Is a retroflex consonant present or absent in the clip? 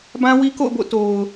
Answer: absent